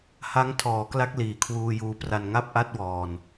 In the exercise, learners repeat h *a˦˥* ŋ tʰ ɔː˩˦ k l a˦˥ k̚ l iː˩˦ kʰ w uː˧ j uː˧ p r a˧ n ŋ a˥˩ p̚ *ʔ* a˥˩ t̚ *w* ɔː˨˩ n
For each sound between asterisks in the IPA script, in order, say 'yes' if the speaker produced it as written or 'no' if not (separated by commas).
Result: yes, yes, yes